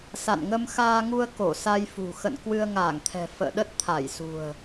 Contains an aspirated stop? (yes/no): yes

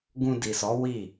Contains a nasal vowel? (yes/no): yes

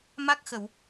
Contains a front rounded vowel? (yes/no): no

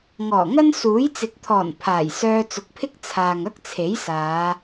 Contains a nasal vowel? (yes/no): no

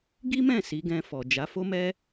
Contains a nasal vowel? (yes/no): yes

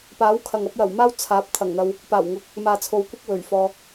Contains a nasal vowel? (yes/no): no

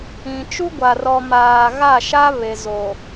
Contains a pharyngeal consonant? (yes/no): no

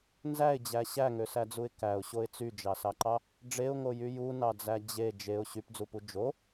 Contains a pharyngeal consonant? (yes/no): no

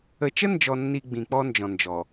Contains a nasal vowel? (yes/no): yes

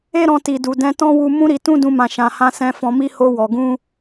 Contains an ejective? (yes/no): no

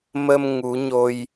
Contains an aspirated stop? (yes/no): no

